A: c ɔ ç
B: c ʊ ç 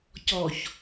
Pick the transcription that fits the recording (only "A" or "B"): A